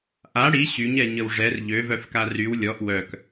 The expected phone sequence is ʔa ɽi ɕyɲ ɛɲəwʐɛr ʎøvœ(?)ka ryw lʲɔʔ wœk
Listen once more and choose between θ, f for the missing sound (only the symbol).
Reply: f